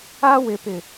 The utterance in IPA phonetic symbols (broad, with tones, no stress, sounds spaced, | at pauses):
a˦ w ɪ˨ p ɪ˨